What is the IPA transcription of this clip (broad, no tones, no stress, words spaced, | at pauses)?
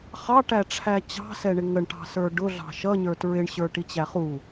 χɑʈæʈ͡ʂʰæ t͡ɕɑ̤sɛɳɪ ŋəɳʈɑ̤sə˞ ɖʊɮɑ̤ ʃʌɲə˞ tɹɪɳɕə˞ʈit͡ɕæ χu